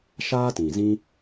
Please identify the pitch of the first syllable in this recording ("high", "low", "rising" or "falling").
high